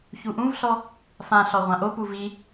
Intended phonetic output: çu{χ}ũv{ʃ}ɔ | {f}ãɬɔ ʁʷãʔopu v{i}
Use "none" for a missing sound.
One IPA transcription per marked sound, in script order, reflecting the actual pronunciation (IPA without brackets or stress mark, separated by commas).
ʔ, ɬ, f, i